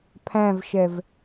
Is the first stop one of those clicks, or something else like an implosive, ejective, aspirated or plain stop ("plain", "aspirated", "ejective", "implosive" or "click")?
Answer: aspirated